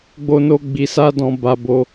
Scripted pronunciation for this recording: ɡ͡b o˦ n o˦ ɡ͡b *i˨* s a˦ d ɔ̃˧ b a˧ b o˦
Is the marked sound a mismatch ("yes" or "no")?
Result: yes